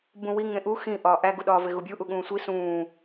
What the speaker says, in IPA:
bũwi ŋẽʔu xĩ ʔɒːʔæɡu ɗɒːveɣubʲu ʔuɠũːsʷi sũː

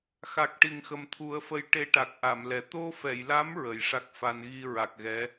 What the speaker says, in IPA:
xa˨˩k̚ʈi˨˩ŋxə˨˩mt̪ʰu˨˩˦ə̯ fə˧j ʈe˧ʈa˨˩k̚ʔa˨˩˨m lɛ˨˩ t̪o˧fɛ˨˩˨jla˧˥m ɹə˨˩˨jʂa˦˥k̚fa˧n ɣi˧ɹa˨˩k̚ ɣɛ˧˥

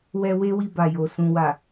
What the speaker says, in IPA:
wɛ˧ we˦wi˧ba˨jo˨ sũ˨wa˨

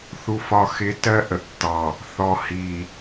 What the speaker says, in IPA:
θu˨fɒ˨xɪ˨˦ tɜ˦ ʔə˨ʔtːɑ˨ | θɔ˨hi˨

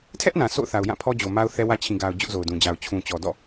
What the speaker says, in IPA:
tʰɛ˦ʔ nã˨so̰˦˨ʊ̯θa˨ʊ̯ jã˦˨pʰɔ˦ d͡ʑo˨ma˦ʊ̯θɛ˦wä˦ t͡ɕʰĩ˨ɡa˨ʊ̯ d͡ʑʊ˦ʔzo˨ʊ̯dũ˨d͡ʑa˨ʊ̯ t͡ɕʰũ˨t͡ɕɔ˨dɔ̰˦˨

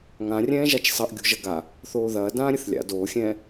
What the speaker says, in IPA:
ŋãrʲɛ̃ːʒat͡ʃ sˤɐʔɡʲo̤ʒɐ ɡa | θoːðɐː dãːɾʲɘθlʲa̰ doːxʲɛ̃ː

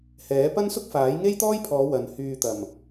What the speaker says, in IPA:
hɛː˨˥ pɐ˥nsʊ˥k̚faː˨˥j ŋe˥jt̪ɔː˥jpʰɔː˨˧ wɐ˨n hyː˨t̪ɐ˨˩m

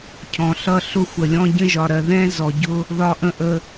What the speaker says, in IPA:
cʰɔ̃˨ɬʌ˦ ɬʊ˦xʷə˨lʲɔ̃˦ ɟə̃˦ʒɒ˨ɾɜ˨ ðɛ̃˦zɔ˨ɟʊ˦ | ðɒ˦ʔə̃˦ʔə˦

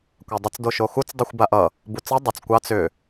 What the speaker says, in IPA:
kʷadˤʊt͡s doʃoxut͡s dˤuxʷbaʔʌ | but͡sʌ dˤʊt͡s kʷɑt͡s ʏ

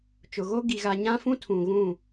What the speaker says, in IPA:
t͡ʃʊ˨ɣo˦ ɡi˨ɣa˨ɲã˦fũ˦ tʰũ˨ɣũ˦˨

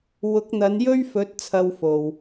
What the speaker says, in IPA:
wʊ˨˥k̚n̪ɐ˨˧n jɵ˥ɥfɵ˨˥t̚ t͡sʰɐ˨w fo˨w

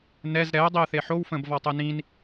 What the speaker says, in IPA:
nɛz ɾɛə̯dˤiə̯θe ħowfə̃bvɔtˤɛ nĩn

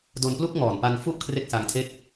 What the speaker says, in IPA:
do˧nplu˥˩k̚ŋɔː˨˩n pa˧n fu˥˩ʔ kʰre˥˩k̚sa˧ŋtʰe˥˩k̚

